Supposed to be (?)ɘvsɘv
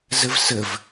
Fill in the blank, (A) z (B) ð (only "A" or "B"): A